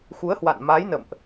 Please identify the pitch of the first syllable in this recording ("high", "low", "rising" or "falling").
rising